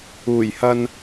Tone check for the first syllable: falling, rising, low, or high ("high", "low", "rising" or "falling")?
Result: low